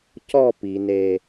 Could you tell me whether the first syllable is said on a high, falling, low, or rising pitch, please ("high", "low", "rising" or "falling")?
falling